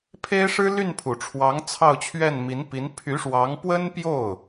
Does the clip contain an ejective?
no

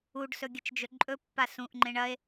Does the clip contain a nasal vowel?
yes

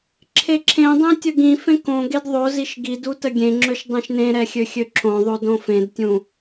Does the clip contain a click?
yes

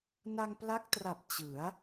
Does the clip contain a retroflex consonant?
no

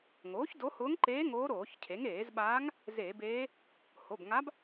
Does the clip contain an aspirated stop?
yes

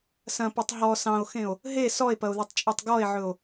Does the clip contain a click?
no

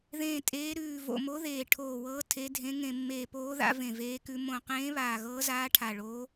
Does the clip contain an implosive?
no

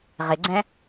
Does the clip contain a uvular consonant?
yes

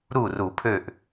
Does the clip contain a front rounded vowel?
yes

